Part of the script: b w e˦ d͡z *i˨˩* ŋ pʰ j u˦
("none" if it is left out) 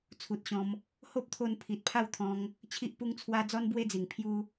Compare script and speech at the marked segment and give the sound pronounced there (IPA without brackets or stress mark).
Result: i˨˩